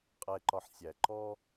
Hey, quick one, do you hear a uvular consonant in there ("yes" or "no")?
yes